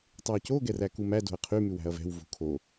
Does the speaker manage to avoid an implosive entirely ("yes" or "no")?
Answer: yes